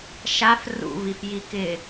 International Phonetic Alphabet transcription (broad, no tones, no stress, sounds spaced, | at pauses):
ʃ a f r ṵ v i f j i k ɪ